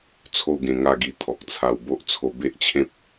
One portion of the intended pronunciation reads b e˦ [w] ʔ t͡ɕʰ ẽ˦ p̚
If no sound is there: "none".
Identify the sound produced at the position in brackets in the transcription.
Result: none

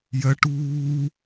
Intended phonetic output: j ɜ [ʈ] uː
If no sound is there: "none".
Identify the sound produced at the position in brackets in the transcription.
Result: ʈ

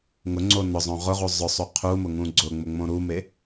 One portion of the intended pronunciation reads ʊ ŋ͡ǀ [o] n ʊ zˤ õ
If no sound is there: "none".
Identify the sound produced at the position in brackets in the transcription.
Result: o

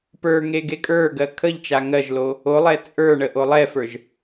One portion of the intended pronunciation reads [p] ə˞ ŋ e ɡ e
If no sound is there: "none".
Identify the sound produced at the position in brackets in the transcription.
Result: p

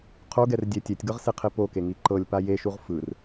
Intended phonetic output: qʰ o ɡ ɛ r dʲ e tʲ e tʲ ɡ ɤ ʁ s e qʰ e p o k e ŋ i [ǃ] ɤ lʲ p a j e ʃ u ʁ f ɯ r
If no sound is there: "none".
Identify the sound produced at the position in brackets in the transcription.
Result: ǃ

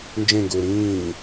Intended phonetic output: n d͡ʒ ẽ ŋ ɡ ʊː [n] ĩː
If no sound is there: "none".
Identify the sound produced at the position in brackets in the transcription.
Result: ɾ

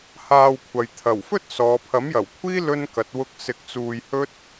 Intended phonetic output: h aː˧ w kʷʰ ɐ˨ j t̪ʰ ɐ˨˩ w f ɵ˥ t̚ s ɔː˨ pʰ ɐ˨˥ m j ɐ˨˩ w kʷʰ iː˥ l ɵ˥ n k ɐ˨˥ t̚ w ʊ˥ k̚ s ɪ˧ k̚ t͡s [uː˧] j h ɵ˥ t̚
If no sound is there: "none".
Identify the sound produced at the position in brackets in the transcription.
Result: uː˧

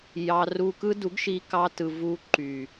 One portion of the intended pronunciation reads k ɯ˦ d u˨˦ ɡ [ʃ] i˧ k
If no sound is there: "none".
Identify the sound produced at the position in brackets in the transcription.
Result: ʃ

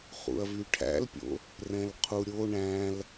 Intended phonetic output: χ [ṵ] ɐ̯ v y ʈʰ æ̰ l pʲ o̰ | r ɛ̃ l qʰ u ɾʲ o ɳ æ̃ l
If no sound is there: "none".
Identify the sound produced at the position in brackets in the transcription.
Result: ṵ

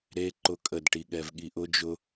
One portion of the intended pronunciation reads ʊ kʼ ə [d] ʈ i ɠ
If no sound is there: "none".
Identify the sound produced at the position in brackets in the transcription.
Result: d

